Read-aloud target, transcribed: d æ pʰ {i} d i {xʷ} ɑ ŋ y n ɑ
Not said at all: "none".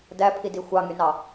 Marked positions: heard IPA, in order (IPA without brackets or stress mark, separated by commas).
i, xʷ